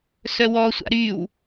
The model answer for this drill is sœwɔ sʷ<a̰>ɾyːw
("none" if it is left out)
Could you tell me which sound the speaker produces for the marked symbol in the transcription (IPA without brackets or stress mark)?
a̰